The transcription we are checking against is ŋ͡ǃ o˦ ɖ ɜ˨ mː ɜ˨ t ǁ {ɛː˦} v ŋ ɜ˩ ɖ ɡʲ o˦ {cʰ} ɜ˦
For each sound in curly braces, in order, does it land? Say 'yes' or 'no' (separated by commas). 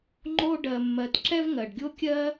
no, no